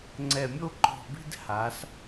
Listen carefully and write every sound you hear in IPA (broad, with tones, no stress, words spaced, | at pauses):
ŋ͡ǀɛ˧˩mʲo˥˧ǃɔ̤˧˩bi̤˥˧d ha˩˧s